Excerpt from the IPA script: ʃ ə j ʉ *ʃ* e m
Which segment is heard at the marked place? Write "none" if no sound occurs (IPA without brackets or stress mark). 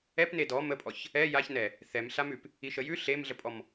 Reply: ɬ